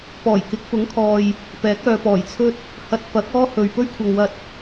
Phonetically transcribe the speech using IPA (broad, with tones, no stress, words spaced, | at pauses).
pɔː˨˩jkɪ˨˥k̚fʊ˨˥ŋkʰɔː˨j | pɛː˨˥k̚œː˨pɔː˨˩jt͡sʰɵ˥t̚ | hɐ˧t̚fɐ˨˥k̚ ɔː˥hɵ˨ɥ pɵ˥ɥkʷʰɐ˨ŋwɐ˧t̚